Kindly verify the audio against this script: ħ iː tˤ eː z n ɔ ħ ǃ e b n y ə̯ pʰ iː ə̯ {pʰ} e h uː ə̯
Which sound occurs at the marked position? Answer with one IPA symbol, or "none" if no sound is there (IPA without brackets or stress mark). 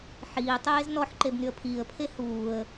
pʰ